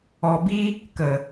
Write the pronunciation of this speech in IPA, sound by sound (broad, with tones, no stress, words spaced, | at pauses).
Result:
ɔ˨bi˦ | kə˨